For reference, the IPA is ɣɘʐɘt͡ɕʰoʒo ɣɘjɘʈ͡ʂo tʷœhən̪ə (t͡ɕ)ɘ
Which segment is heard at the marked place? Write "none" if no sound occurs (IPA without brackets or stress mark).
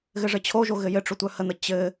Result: t͡ɕ